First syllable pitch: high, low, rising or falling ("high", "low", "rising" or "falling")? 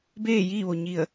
falling